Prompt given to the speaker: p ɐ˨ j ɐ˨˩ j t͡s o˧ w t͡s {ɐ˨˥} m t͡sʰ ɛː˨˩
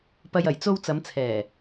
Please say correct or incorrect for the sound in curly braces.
incorrect